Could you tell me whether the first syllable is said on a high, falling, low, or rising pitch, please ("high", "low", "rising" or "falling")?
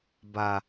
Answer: low